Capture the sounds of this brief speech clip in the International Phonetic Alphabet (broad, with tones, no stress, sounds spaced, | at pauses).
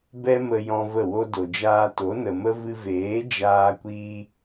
b ɛ˦ m ə˧ j ɔ̃˧ v ə˦˨ w o˦ d o˨ d͡ʒ aː˧ t o˨˦ n ə˨ m ə˦ v ɨ˧ v eː˨˦ d͡ʒ aː˧ kʷ iː˧